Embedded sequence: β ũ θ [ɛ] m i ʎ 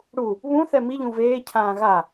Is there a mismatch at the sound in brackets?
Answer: no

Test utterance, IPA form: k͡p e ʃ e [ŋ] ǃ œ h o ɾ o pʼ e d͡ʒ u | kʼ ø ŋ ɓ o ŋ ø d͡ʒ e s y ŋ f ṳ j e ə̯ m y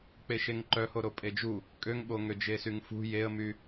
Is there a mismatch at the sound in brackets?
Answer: no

